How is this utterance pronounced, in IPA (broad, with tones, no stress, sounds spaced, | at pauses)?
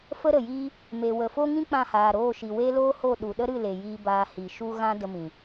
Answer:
f ə˦ ɾ ə˨ j iː˦ | m e˨ w ə˨ f o˦ ŋ ĩ˦ k͡p ã˦˨ h aː˨ ɾ oː˦˨ ʃ i˨ w e˦ l oː˦ h o˦˨ ɗ u˨ ɗ ə˦ ɾ ɨ˦˨ l e˨ j iː˧ b aː˧ h i˨ ʃ u˦ ɣ ã˦ d ə˧ m ĩ˨